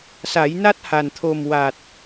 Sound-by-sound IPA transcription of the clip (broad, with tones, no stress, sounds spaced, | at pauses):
s a˨˩˦ j n a˦˥ t̚ h a˨˩ n t̪ʰ o˨˩ m w a˨˩ t̚